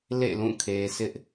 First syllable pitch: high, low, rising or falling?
falling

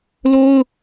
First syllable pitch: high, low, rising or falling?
high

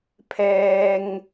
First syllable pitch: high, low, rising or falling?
low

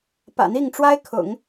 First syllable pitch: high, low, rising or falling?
low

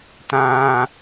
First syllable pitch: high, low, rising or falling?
high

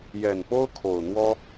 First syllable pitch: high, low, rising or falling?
low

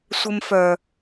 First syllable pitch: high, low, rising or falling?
high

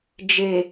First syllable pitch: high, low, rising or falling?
low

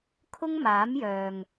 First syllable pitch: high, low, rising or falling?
high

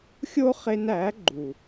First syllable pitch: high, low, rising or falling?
high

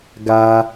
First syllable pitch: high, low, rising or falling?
high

